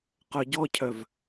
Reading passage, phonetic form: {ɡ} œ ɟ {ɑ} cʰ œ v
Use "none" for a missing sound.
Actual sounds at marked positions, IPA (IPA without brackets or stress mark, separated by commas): q, ɔ